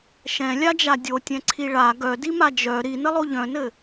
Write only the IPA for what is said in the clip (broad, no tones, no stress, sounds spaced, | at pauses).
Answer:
ʃ ɛ̃ lʲ a d͡ʒ a dʲ o tʲ ɛ̃ ǀʰ i ɭ a ɡ œ d i m a d͡ʒ œ ɾ i n ə lˠ o ʎ œ̃ n ɘ